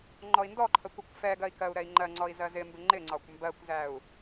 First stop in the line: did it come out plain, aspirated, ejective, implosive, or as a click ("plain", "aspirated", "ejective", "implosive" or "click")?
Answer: click